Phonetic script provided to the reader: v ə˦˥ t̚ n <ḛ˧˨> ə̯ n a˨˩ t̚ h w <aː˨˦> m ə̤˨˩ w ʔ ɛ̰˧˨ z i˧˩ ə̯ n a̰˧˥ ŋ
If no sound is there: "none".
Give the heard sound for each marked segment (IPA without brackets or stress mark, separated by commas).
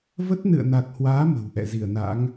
ɨ̰˧˨, aː˨˦